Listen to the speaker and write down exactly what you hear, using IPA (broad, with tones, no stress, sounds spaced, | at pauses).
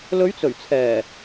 l ɵ˨˧ ɥ t͡s ɵ˨˩ ɥ t͡sʰ ɛː˨˩